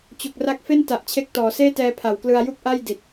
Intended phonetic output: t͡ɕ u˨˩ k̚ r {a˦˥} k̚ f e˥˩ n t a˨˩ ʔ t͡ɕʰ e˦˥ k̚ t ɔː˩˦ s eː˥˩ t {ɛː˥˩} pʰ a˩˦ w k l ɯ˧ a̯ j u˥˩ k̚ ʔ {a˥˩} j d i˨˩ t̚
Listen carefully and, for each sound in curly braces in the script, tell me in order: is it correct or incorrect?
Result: correct, incorrect: ɛː˧, correct

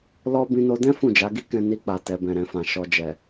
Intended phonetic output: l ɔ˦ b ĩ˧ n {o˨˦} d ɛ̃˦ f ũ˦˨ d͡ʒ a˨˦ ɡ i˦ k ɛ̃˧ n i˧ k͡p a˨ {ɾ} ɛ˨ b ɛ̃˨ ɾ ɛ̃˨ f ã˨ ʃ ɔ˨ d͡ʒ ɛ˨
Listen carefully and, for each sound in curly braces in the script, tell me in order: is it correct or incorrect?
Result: incorrect: o˧, incorrect: t

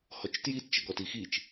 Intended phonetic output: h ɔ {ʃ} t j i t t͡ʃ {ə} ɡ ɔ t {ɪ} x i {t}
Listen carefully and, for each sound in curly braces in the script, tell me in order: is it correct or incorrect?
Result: incorrect: t͡ʃ, correct, incorrect: i, incorrect: t͡ʃ

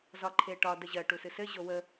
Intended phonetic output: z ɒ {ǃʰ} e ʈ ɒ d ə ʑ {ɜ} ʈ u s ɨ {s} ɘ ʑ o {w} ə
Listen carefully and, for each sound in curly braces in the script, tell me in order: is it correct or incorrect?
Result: correct, correct, correct, correct

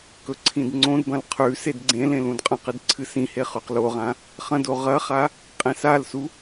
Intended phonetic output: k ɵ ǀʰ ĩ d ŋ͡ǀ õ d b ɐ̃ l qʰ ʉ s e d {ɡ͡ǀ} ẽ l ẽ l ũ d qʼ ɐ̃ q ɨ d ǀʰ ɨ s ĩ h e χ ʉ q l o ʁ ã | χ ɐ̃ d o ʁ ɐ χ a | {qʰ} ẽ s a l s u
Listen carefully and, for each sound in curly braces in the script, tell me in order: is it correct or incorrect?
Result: correct, incorrect: qʼ

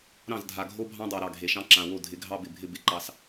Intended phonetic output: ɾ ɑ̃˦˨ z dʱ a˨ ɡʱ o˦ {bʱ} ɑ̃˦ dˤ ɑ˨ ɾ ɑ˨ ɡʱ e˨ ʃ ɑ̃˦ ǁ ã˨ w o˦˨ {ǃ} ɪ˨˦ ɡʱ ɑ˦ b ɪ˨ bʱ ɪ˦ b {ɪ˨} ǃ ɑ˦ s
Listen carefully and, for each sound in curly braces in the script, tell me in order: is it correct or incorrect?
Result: correct, incorrect: dʱ, correct

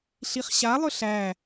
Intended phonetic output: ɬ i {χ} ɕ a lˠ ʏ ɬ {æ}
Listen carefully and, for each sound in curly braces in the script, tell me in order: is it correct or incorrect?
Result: correct, correct

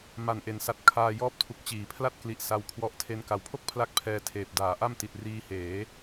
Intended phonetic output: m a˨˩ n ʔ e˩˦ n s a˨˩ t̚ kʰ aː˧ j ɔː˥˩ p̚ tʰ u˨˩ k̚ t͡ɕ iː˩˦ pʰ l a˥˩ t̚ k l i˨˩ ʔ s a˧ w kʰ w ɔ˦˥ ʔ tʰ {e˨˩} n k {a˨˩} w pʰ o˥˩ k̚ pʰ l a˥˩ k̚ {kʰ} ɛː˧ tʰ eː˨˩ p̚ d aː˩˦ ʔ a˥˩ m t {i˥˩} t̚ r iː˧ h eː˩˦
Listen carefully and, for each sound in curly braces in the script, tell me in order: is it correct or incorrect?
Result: incorrect: e˦˥, correct, incorrect: pʰ, incorrect: i˨˩

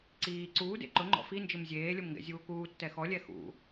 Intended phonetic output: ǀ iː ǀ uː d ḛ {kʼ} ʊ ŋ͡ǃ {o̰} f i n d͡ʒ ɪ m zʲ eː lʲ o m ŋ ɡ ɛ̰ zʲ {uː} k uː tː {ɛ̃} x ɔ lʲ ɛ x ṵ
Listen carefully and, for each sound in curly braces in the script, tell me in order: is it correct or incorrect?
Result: incorrect: ǃ, incorrect: ɔ̰, correct, incorrect: ɛ

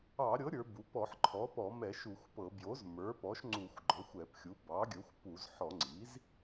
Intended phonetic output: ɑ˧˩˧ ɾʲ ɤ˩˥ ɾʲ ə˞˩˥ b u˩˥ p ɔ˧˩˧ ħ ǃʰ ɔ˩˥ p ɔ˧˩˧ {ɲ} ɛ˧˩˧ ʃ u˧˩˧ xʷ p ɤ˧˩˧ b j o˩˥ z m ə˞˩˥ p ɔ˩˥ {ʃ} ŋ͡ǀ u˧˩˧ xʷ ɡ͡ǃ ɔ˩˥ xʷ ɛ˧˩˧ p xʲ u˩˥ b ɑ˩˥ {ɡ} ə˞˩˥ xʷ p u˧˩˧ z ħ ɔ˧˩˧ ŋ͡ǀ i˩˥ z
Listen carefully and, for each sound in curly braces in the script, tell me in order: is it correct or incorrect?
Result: incorrect: m, correct, incorrect: ɡʲ

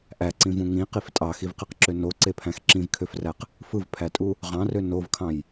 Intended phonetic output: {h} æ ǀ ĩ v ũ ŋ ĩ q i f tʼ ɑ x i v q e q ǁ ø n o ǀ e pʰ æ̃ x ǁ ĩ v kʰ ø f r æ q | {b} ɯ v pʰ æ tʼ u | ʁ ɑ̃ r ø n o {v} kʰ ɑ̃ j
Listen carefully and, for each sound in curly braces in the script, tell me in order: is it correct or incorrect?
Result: incorrect: ʔ, incorrect: f, correct

